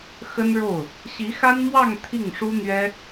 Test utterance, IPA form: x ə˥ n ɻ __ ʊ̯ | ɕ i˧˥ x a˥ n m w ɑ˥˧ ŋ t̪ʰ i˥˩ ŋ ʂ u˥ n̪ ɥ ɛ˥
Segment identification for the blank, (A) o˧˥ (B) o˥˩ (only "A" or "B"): B